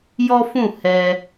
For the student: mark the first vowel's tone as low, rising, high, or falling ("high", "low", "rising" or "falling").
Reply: high